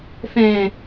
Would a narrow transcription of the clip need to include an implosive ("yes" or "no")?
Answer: no